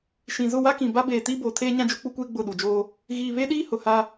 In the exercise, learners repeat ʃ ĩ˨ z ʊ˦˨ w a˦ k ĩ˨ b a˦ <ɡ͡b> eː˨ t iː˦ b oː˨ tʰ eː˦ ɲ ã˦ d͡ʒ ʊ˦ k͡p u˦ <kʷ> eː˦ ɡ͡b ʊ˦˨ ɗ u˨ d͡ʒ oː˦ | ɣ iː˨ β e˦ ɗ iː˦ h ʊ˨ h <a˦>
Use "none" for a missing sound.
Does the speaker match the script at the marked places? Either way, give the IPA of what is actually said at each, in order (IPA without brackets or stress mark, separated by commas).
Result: b, kʷ, a˦